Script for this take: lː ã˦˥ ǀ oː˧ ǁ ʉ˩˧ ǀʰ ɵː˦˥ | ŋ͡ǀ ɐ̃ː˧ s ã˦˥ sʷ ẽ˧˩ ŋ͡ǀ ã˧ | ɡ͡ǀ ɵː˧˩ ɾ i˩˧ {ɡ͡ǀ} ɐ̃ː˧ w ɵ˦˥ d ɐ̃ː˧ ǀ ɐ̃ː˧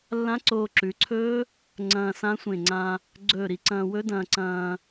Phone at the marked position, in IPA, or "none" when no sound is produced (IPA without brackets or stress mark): ǀ